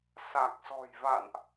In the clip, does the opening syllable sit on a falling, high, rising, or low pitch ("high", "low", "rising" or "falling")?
low